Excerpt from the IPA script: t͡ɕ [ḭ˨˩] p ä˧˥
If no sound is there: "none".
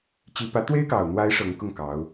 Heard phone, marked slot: i˧˥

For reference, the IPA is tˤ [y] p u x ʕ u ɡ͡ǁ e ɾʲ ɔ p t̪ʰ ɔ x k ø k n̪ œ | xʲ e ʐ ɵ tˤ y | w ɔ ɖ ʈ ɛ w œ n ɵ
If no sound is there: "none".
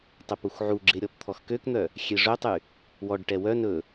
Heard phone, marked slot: ø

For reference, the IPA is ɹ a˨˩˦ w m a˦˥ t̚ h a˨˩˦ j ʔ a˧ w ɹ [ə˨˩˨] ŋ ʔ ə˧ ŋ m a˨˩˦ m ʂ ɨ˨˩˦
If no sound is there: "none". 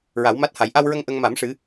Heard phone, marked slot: ə˧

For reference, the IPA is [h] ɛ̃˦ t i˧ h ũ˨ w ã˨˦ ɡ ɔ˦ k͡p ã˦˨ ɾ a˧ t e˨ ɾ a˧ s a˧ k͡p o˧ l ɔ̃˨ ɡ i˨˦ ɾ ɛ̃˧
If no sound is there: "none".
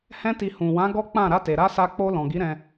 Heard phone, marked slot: h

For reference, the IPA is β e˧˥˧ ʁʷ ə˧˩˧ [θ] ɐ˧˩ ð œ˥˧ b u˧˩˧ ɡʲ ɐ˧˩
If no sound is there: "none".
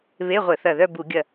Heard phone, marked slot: θ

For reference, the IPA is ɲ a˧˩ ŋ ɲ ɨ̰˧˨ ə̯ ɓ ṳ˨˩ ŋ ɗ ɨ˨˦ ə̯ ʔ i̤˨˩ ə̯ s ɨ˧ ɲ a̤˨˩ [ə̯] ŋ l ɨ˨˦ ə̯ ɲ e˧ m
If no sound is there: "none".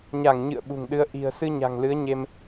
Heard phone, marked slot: none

